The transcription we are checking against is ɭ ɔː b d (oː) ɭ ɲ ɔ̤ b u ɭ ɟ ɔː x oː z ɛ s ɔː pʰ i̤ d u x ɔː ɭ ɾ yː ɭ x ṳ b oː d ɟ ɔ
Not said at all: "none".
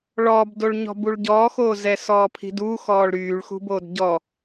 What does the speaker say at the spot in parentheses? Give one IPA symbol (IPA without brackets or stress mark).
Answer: o